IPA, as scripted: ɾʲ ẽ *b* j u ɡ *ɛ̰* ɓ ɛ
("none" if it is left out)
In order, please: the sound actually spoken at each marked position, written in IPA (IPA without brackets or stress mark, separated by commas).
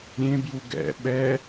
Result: b, ɛ̰